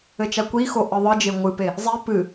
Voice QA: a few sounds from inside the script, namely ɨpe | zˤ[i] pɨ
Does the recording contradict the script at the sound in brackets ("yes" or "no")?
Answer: no